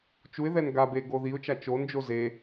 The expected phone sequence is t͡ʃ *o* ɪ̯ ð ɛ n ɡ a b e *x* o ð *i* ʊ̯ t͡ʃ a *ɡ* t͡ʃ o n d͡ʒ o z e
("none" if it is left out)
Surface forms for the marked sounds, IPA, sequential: u, ɡ, i, none

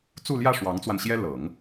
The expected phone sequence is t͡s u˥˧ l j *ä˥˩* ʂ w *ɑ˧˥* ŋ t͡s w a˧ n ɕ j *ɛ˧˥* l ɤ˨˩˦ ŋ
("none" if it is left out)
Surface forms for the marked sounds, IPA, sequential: ä˥˩, ɑ˧˥, ɛ˥

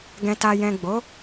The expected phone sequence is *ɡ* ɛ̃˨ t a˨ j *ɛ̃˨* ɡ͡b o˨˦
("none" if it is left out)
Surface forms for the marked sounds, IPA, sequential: ɡ, ɛ̃˨

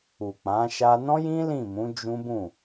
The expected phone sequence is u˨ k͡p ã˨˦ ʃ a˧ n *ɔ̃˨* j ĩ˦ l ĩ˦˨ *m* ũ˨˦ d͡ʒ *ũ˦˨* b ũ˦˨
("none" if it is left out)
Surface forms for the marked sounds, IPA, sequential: ɔ̃˦, m, ũ˦

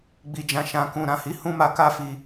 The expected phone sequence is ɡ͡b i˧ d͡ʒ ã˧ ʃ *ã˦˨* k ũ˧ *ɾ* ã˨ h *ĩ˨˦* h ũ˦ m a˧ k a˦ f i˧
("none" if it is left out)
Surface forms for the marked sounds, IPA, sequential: ã˧, ɾ, i˨˦

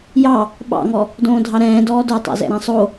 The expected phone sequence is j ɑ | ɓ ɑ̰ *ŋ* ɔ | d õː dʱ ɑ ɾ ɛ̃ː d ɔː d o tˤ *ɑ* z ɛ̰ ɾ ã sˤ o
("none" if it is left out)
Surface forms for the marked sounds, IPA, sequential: ŋ, ɑ̰

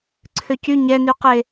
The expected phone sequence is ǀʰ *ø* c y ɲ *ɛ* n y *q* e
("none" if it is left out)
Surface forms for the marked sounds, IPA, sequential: ø, ɛ, q

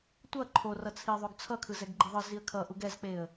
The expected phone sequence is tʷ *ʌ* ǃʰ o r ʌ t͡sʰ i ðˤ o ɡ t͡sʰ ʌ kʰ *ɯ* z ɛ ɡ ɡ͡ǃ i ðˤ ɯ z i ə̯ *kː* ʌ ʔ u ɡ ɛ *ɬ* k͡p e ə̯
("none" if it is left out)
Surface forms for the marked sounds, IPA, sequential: ʌ, ɯ, kʰ, z

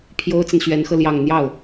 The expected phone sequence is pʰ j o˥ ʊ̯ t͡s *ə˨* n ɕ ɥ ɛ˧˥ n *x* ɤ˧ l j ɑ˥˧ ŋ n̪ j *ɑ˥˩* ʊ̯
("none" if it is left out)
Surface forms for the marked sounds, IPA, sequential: ə˨, x, ɑ˥˩

